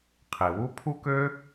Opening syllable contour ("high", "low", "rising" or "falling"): low